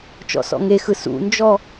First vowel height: mid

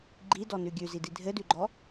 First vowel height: high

